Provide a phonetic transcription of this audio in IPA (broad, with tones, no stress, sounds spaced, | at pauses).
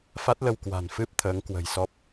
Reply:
f a˦˥ t̚ l ə˧ w k w a̤˨˩ n f ɨ˦˥ p̚ t̪ʰ əː˨˦ ŋ k w ə̤˨˩ j s ɔ˦˥ p̚